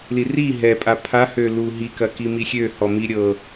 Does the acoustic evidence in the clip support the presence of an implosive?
no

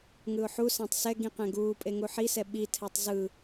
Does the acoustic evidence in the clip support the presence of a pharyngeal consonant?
yes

